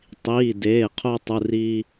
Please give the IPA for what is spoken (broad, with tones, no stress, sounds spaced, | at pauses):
tˤ iː˩˧˩ d eː˩˧˩ qʰ o˧ tˤ u˩˧˩ r iː˧